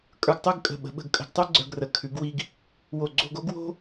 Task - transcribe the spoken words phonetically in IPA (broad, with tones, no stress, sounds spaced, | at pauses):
kʼ ə˞˧ ɡ tˤ ʉ˥˧ ɡ kʼ ə̤˧˩ ɓ ə̤˩˧ ɓ ə̤˧˩ ɡ kʼ ə̤˧ ɡ tˤ ʉ˥ ɡ͡ǀ ə˞˧ ɡ r ə˩˧ kʰ ʉ˩˧ ɡ w i˧ ɡ | w o˧˩ ɡ͡ǀ o̤˥˧ ɡ o˥ ɡ w o̤˥